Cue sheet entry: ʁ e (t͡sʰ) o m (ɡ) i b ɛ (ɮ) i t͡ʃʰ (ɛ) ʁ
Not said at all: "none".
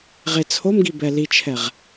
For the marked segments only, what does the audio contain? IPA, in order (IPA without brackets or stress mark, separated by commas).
t͡sʰ, ɡ, l, ɛ